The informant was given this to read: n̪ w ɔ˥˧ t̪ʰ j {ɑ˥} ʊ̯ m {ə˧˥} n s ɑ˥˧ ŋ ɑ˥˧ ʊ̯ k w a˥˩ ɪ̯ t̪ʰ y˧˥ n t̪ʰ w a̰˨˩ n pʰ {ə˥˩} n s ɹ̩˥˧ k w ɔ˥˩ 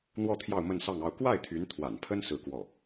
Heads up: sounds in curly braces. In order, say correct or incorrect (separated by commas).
incorrect, incorrect, incorrect